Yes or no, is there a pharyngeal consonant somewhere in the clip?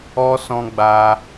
no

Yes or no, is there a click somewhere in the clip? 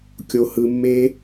no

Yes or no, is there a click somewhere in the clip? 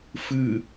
no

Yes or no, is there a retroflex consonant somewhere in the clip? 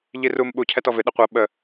no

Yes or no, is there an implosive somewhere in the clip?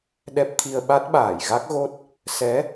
yes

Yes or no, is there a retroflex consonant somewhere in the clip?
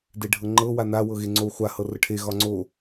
yes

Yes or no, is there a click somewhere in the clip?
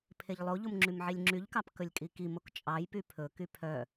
yes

